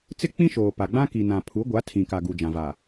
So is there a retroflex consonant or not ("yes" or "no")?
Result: no